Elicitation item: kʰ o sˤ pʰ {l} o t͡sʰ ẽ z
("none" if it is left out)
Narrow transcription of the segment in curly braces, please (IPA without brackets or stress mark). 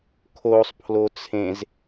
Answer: l